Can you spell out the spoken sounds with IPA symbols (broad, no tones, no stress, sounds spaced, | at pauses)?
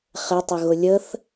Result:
χ ɪ tˤ ə ɣ ʊ lʲ ə θ